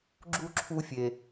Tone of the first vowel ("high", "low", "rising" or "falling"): high